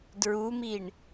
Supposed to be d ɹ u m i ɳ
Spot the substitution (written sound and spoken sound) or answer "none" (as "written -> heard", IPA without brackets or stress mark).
none